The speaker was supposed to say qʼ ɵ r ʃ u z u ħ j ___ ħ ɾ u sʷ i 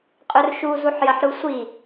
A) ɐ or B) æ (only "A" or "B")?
A